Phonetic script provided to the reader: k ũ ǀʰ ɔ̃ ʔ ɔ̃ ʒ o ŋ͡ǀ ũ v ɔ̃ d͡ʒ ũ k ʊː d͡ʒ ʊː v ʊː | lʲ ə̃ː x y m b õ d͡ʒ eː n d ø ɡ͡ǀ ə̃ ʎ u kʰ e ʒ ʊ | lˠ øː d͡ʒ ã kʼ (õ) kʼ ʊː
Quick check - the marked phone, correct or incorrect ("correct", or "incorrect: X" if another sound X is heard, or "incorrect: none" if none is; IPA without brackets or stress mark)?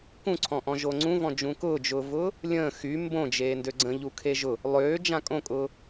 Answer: correct